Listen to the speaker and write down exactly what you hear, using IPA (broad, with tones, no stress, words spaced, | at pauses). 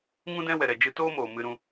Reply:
ŋũ˦dɛ̃˦wɛ˨ɾɛ˨ d͡ʒɨ˧toː˦ moː˨mɨ˧ɾũ˧